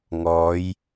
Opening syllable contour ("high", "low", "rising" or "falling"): rising